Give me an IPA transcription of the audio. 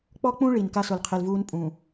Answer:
k͡p ɔ˦ k͡p ũ˦ ɭ i˨ n k a˦ s ʊ˨ l qʰ e˨ l v uː˦ n pʼ ũ˨

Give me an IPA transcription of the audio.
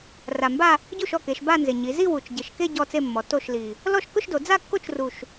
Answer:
r a˨˩ m b a˥˧ | ɟ u˥˩ ʃ ɔ˥˩ k e˩˧ ʃ b a˥˧ n z ɪ˨˩ ɲ i˩˧ z i˥˧ w u˨˩ t͡ʃ ɟ ɪ˨˩ ʃ k e˥˧ ɟ ɔ˥˧ t͡s e˥˧ mː ɔ˩˧ t o˥˩ ʃ l i˨˩ | l ɔ˥˩ ʃ k ʊ˥˧ ʃ d o˩˧ d͡z a˥˧ kː o˥˩ t͡ʃ r u˨˩ ʃ

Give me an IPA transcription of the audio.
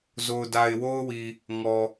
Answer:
z o˨ ʊ̯ d a˨ ɪ̯ w o˦ ʊ̯ w i˨ | ŋ ɔ˨

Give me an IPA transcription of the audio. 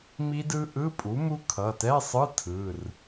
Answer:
m i˦˥ d ɯ˦˥ ʔ ɯ˧˥˧ pʼ u˩˥ m u˦˥ kʰ ʌ˩˧˩ t ɛ˧˥˧ sˤ ɯ˧˥˧ tʰ ɯ˩˧˩ r

